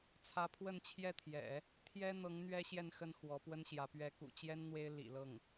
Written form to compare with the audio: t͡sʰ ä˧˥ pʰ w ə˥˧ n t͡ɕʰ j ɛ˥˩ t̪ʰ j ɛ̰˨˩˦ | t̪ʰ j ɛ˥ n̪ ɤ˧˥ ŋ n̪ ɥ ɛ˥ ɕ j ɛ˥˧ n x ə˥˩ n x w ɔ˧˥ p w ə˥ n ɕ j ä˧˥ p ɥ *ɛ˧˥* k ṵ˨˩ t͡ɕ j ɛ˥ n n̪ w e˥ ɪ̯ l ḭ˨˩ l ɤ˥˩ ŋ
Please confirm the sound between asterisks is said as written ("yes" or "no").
yes